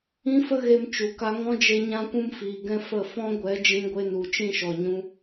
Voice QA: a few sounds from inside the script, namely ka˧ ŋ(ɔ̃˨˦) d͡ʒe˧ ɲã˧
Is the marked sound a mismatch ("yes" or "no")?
yes